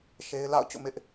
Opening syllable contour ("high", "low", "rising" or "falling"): high